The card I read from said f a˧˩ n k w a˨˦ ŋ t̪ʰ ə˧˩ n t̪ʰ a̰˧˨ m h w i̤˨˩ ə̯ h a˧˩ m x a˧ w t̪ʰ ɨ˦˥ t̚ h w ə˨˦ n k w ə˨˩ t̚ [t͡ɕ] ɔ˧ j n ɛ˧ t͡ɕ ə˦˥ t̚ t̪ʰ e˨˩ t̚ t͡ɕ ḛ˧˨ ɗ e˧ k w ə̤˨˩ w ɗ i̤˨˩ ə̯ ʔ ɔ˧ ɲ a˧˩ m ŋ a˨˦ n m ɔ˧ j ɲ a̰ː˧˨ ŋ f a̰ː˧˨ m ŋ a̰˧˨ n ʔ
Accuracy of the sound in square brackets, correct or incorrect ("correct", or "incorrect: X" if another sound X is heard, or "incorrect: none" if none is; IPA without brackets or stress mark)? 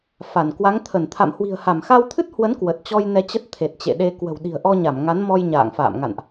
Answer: correct